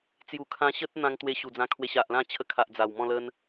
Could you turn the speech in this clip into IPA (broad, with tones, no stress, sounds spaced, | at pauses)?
t͡s j u˨˩ kʰ ã˧ ɕ ə˦ t̚ n̪ ã˧ ŋ t̪ w e˧ ɕ u˨˩ d͡z ã˧ kʰ w e˧ ɕ a˨ ʔ l ã˥˧ t͡ɕʰ ə˧ kʰ a˨ ʔ d͡z a˨˩ w m ɔ̃˥˧ l ə˦ n